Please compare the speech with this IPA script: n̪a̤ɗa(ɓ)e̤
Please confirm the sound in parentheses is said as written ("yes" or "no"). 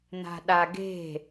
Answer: no